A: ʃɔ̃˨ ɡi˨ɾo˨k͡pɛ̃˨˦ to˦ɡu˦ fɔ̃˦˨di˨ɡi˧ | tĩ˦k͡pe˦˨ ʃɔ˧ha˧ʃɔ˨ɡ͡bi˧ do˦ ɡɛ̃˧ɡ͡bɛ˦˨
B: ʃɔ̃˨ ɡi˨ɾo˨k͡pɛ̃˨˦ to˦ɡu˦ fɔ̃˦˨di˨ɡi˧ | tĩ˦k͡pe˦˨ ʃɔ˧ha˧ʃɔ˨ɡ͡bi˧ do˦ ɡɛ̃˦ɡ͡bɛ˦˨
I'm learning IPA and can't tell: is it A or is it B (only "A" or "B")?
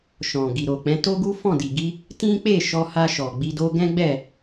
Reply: B